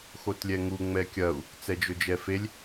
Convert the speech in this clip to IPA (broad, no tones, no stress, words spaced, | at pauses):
xotlʲɛŋu ŋ͡mɛkʲɐu̯ | t͡sɛd͡ʒɵd͡ʒɛfelʲ